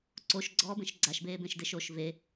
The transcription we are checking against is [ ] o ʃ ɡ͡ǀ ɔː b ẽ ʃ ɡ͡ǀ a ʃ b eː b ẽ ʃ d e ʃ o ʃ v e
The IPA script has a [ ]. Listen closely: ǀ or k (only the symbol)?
ǀ